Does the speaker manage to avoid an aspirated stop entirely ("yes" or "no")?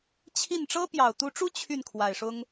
no